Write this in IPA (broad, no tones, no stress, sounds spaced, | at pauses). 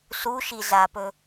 s u ʃ i z a p ɵ